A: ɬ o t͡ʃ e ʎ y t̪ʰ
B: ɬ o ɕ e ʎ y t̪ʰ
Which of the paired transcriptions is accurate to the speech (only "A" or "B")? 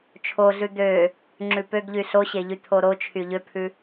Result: B